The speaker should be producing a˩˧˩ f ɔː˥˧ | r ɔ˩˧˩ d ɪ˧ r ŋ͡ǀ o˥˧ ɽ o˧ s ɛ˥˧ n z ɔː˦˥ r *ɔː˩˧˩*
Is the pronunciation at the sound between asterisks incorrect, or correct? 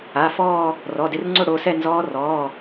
correct